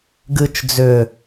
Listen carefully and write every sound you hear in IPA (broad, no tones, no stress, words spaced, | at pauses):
ɡɨt͡ʃ d͡zʏ